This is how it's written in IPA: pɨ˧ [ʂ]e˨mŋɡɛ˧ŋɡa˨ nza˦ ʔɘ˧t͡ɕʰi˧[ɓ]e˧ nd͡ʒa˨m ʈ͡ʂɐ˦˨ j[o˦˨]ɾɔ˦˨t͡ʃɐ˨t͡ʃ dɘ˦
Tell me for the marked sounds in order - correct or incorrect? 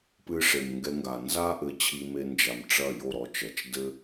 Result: correct, incorrect: m, correct

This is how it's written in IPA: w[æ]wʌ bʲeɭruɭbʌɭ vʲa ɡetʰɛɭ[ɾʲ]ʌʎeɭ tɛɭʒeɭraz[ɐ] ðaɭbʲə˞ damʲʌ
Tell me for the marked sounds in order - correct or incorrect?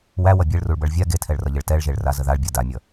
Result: correct, incorrect: r, incorrect: ə

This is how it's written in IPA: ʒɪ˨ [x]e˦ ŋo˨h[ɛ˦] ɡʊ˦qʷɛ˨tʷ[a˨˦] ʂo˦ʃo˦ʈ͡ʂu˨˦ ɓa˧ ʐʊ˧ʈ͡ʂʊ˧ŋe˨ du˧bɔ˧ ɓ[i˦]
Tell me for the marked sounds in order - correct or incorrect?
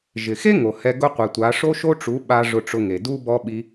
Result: correct, incorrect: ɛ˧, correct, correct

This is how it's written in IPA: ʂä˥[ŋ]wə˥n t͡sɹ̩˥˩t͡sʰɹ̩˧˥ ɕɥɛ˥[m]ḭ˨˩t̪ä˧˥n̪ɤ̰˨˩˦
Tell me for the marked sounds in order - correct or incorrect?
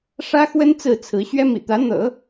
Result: incorrect: x, correct

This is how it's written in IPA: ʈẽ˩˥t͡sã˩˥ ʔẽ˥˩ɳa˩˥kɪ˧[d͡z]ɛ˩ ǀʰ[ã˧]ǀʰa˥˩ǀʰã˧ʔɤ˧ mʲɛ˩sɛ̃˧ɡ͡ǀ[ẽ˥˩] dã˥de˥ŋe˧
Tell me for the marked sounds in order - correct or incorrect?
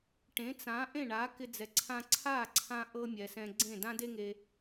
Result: correct, correct, correct

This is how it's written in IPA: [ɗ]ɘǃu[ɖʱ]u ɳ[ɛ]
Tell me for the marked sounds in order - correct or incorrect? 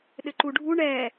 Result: correct, correct, correct

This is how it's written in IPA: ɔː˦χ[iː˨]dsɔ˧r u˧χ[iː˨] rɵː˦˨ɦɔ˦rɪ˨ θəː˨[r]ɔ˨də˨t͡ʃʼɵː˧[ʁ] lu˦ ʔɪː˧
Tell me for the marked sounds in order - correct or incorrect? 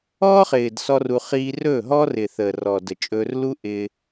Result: incorrect: ɪː˨, incorrect: iː˦, correct, incorrect: r

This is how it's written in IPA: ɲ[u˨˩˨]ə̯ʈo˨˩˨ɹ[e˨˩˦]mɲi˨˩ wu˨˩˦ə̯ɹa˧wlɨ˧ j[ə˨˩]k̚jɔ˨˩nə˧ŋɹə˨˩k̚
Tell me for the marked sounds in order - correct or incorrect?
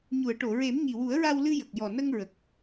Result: correct, correct, correct

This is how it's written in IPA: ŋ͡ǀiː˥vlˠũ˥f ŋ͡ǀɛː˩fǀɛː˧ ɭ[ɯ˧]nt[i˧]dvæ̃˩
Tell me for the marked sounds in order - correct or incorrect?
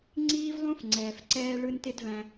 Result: correct, incorrect: ɪ˧

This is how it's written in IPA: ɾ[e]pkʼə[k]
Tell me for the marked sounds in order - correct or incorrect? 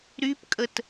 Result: incorrect: y, incorrect: t

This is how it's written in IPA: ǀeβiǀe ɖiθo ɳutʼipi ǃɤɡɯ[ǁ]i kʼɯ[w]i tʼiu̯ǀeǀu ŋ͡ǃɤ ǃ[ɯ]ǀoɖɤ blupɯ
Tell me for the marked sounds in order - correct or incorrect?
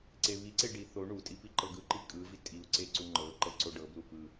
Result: incorrect: ǃ, incorrect: v, incorrect: ɤ

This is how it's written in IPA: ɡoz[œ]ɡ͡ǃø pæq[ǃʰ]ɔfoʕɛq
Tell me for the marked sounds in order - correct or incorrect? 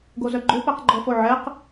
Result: correct, incorrect: ɡ͡ǃ

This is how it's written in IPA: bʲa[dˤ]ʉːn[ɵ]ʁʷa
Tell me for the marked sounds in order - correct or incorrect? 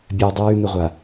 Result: correct, correct

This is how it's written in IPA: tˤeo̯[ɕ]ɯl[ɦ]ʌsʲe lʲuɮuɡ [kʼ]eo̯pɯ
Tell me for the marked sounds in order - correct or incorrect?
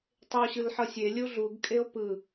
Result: correct, incorrect: ħ, correct

